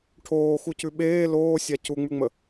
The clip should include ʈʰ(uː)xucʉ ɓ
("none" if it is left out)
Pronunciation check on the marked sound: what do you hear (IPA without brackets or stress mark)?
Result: oː